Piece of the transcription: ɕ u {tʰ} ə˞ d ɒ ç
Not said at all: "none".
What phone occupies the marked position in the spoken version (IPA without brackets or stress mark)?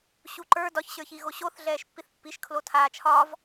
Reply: ǃ